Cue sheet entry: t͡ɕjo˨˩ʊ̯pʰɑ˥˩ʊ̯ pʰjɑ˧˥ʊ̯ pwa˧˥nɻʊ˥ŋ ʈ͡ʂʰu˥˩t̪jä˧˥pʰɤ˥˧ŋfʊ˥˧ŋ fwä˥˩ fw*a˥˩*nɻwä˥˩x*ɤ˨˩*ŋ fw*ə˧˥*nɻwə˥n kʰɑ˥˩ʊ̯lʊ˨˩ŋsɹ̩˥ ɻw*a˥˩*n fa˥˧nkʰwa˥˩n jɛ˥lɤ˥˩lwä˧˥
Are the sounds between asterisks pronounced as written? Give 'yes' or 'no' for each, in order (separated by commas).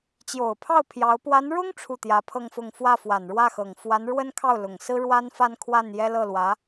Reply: no, yes, no, no